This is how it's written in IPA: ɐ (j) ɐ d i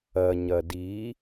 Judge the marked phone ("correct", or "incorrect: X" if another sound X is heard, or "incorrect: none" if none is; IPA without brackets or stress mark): incorrect: ɲ